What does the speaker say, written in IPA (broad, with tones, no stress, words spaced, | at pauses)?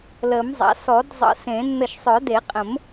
ləː˨˩˦mzˤa̰˩˥ sɔ˨˩˦dzˤə̰˨˩˦sẽ˨˩˦ nːə˧˩ʃsˤœ˨˩˦de˨˩˦qʼə̃˨˩˦m